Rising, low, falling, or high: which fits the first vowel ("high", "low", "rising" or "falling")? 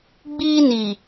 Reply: high